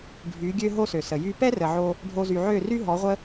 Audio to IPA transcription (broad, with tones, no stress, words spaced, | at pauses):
ɖʱy˨˦ ɡʲø˦ɦo˦sø˨sə˨ jy˧pɛ˦rə˨ʕo˧ | ɖʱo˧zy˨ʕø˦˨ ry˦ɦɔ˨˦ʁʷə˦